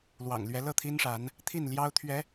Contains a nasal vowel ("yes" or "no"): no